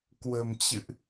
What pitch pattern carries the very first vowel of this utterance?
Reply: low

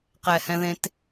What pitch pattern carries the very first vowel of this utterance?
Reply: low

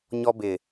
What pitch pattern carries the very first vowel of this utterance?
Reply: high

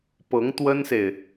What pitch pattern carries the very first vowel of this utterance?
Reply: rising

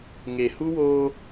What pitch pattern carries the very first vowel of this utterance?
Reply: low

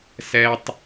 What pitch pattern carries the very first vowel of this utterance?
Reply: high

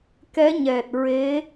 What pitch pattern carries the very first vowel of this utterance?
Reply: rising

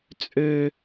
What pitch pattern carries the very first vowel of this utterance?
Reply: high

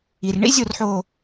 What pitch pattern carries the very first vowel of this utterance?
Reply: low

